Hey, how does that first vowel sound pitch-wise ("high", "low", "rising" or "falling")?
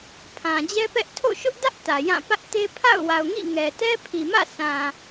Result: low